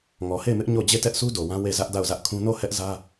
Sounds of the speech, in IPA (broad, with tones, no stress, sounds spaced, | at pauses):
ŋ ɔ˨ h e˦˨ ɪ̯ m ɪ˦ ʔ ɲ o˦˨ d͡ʑ e˦˨ t ɛ˦ ʔ s u˦ d o˨ w ã˦ w e˦˨ z ä˦ ʔ d a˦˨ ʊ̯ z ä˦ ʔ kʰ ũ˦ n o˦˨ h ɛ˦ ʔ z ä˦